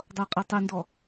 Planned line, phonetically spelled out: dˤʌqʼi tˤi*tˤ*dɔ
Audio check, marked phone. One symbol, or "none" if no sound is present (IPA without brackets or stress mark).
n